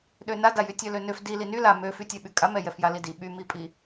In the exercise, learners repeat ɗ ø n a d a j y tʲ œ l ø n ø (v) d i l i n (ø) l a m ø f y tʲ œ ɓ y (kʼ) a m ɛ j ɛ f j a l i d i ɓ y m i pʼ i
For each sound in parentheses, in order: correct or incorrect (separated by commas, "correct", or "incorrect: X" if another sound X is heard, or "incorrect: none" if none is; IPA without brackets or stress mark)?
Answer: incorrect: f, incorrect: y, correct